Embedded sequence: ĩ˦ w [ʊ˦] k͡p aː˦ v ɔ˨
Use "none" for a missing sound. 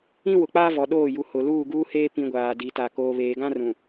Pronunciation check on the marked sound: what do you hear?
ʊ˨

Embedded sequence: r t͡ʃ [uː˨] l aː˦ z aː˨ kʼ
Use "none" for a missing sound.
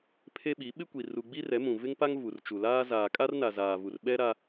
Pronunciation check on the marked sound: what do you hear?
u˨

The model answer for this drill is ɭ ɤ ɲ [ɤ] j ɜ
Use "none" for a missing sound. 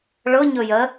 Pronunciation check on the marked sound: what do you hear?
ɵ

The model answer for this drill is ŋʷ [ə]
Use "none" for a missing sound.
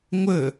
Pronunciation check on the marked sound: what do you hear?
ə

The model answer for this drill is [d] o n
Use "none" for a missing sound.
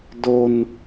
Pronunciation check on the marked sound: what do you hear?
d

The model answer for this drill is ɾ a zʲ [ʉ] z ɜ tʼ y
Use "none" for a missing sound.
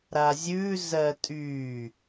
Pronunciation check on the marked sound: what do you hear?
ʉ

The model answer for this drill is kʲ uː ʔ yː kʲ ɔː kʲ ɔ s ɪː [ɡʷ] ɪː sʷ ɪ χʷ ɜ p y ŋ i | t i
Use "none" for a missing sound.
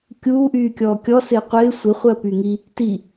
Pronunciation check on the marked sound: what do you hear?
qʷ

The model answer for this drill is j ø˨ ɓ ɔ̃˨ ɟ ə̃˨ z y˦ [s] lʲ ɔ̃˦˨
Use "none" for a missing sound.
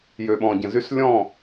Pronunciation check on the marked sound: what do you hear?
s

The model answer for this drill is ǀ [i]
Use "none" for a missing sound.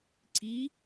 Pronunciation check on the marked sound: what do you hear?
i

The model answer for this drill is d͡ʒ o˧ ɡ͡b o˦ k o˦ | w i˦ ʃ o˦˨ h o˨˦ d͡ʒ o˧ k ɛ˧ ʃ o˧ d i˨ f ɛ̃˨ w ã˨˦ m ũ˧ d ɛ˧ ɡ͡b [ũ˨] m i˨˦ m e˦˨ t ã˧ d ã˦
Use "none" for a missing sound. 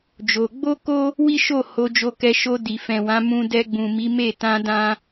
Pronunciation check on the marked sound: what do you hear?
ũ˨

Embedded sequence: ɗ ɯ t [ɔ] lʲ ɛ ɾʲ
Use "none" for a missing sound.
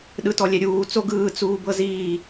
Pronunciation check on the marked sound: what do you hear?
ɔ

